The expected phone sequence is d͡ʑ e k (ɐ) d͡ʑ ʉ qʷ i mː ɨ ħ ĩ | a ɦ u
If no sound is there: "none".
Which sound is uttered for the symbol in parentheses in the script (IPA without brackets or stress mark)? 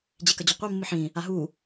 ɐ